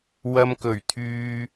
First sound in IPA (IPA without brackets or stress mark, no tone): w